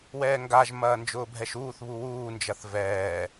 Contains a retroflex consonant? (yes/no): no